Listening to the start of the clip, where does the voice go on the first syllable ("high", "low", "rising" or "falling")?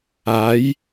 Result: rising